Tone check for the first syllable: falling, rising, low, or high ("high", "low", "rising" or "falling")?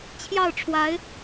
falling